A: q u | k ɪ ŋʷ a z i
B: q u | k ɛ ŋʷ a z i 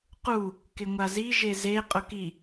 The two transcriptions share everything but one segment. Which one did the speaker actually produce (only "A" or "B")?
A